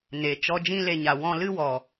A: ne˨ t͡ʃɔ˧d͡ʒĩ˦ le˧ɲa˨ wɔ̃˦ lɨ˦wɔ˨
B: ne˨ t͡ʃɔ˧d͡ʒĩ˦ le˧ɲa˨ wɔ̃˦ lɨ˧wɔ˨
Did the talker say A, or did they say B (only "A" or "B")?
A